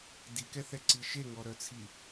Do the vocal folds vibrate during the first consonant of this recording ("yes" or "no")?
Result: yes